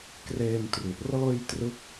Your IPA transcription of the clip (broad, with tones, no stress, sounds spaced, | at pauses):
k r eː˧ m t r u˨˩ ʔ r ɤː˧ j t r ɯ˦˥ k̚